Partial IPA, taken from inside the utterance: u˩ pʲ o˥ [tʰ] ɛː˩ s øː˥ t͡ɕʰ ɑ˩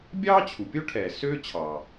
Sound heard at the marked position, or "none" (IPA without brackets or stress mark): ʈʰ